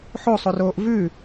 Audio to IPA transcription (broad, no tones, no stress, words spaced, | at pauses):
ħosˤoroːʔ vʉ